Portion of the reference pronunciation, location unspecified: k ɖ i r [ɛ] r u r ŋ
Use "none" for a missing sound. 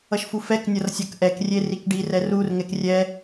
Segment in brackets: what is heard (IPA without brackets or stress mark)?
ɛ